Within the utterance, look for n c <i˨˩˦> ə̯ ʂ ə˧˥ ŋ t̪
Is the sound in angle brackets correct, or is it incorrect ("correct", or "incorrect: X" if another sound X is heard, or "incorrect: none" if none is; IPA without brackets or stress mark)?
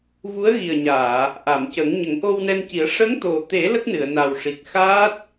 correct